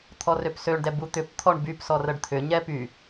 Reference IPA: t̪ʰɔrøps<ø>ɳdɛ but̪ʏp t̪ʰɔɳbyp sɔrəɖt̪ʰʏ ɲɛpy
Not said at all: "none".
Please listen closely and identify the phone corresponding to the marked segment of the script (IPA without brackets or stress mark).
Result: ø